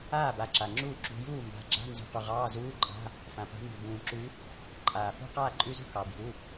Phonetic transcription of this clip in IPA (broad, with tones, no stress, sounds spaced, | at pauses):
aː˥˨ b a˨˦ ǁ a˩ ŋ͡ǁ uː˥˨ ǁ ṳ˨˦ j uː˥˨ m b a̤˨˦ ɡ͡ǁ a̤˧˥˧ n z i̤˨˦ q u˩ ʁ ɑː˧˥˧ z uː˧˥˧ ǃʼ a̤˧˥˧ | f ã˩ p a̤˨˦ m b ʉ˩ b ũː˩ ǁ ʉ˨˦ | ǃʼ aː˩ f ṳ˧˥˧ q aː˥˨ ǃʼ ʉ˧˥˧ z ṳ˥˨ k ɑ˩ b j u˩˧˩